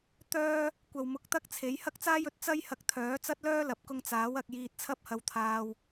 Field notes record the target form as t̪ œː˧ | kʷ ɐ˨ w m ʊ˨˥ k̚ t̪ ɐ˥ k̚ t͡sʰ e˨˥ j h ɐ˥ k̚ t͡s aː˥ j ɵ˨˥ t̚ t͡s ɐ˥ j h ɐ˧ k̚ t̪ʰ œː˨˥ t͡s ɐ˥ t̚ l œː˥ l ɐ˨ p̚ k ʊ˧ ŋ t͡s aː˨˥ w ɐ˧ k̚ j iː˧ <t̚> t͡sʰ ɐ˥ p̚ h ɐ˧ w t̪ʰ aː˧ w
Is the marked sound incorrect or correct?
correct